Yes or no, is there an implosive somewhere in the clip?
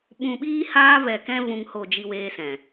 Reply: yes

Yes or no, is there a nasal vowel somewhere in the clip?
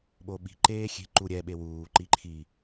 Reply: no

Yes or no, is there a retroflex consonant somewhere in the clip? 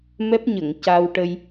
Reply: yes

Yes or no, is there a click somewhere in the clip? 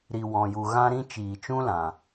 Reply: no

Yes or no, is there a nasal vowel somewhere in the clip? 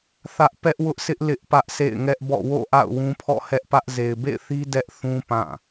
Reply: yes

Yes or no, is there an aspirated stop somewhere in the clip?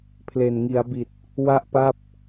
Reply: yes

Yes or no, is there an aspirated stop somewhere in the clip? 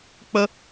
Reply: no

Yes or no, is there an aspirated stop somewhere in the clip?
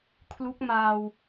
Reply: yes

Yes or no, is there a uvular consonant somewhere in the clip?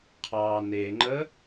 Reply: yes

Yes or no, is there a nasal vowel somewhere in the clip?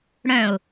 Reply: yes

